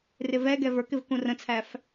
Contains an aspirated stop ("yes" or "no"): yes